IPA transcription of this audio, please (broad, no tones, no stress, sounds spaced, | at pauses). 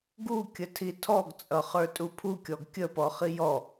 ɡ u kʲ ə tʰ i tʰ ɔ ɡ t͡sʼ ʌ χ ə˞ tʼ u pʰ u kʲ ɔ ɡ kʲ ə p ɔ χ i j ɔ